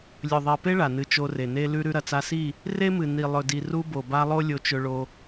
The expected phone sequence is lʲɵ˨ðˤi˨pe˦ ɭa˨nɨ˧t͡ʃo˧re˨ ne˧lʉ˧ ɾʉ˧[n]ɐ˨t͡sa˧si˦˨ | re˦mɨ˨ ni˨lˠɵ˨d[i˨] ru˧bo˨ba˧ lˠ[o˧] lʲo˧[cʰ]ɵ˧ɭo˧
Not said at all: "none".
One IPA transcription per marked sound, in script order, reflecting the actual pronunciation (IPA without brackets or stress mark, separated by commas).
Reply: ɾ, i˨, o˦, t͡ʃ